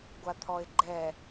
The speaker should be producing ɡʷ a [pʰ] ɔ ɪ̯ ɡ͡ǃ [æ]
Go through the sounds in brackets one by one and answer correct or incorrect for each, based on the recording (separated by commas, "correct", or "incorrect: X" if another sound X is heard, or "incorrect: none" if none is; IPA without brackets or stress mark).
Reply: incorrect: t̪ʰ, incorrect: ɛ